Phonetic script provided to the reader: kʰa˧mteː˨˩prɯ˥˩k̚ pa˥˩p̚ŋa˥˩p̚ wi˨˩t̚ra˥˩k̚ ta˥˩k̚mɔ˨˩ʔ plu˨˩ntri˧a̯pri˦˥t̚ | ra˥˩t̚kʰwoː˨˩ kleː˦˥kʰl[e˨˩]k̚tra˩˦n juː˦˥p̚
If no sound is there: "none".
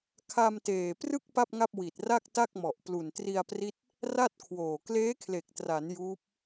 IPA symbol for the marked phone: e˨˩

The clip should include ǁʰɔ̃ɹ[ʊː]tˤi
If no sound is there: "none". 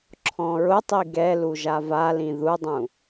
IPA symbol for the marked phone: ʊ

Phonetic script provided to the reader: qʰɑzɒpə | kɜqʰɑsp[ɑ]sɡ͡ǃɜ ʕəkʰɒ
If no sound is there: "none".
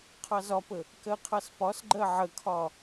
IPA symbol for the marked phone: ɒ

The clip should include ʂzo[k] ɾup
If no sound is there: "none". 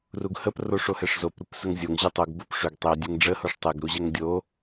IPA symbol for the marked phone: p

